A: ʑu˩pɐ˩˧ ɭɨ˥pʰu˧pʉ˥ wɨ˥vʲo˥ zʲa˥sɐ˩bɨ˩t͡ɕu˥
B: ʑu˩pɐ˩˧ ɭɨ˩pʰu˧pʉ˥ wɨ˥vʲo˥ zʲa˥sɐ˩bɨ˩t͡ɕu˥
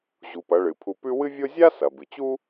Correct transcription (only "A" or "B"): B